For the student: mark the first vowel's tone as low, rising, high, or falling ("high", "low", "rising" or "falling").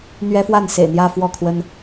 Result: high